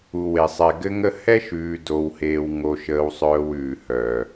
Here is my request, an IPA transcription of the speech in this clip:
u˨we˨sˤɛ˨ ɡɘ˦ŋə˦ hɛ˦ʃʉː˨ do˨wheː˨w ŋo˨ʃəː˨wsˤœː˨w ʉː˨hœː˨

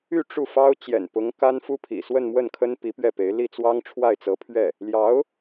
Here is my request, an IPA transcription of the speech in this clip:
y˥˧ ʈ͡ʂu˥˩fɑ˥ʊ̯ t͡ɕjɛ̰˨˩npʊ˧˥ŋ ka˥nfu˥pʰḭ˨˩ swə˥˧nmwə˥˩nkʰə˥n pi˧˥pɥɛ˥˩pe˧˥ɪ̯ li˥˩t͡swɑ˥ŋ ʈ͡ʂʰwa˥˩ɪ̯t͡sɤ˧˥pʰɥɛ˥˩ | ljɑ˧˥ʊ̯

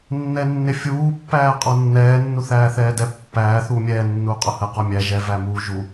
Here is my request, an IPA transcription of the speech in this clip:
nːɛnːɪfʲuː pːæːqʼɔnːɛː nːuθæːθɛːdɛ pːæː θuːmʲɛː nːuːqʼʊhə qɔmʲæ ʒɛ væmuːʒu

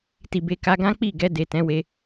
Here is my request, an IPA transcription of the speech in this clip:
ti˨be˧ka˧ɡã˦ k͡pi˦˨ɡɛ˧ de˨tɛ̃˨˦we˧

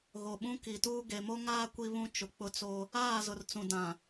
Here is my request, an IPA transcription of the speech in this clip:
ɣo˨ɓũ˦ ki˨tuː˦ ɡe˨mo˦ŋaː˦ kʷi˦βũ˦t͡ʃʊ˨ k͡pʊ˦t͡so˦ | aː˦˨zʊ˨r t͡sũ˨dã˨

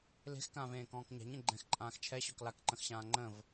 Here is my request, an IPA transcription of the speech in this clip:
le̤xkãːvẽːkɔ̃ːk ɲa̤ɲẽ ɡ͡ǃɛ̃xǃʼãːx t͡ʃʰɛɕɔk lakǃə̃xɕãː ŋ͡ǃə̃v

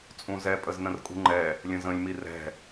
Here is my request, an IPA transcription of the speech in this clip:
t͡sʼũzɛ pʼəznə̃rkʼṳŋ͡ǃɛ | lʲə̃zə̃lʲ mirɛ̤

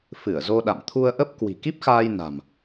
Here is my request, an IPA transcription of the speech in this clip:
fɨ˧˩ə̯zo˧ɗa̰˧˨m t̪ʰu˧ə̯ʔə˦˥p̚ kwi̤˨˩ki˦˥p̚xaː˧jna̤˨˩m

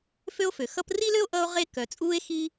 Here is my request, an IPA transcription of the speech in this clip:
fø˥o̯fø˩xʌ˥p ri˥lø˥o̯ ʔʌ˥o̯ʁe˥ kœ˩t͡sʼuː˥e̯xi˥

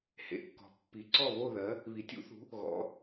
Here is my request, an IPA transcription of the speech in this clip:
hḛ˨˦kːɔ̤˨˦ pːi˨˦ ǀɔ˦˨βo˦˨ðɜ˨˦ | βi˨˦tʲṵ˨˦θṳ˨˦ | ɣɔ̰˨˦

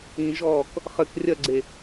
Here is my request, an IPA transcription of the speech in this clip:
ĩʒɔːk | χɘk rʲɐɡ͡ǀe

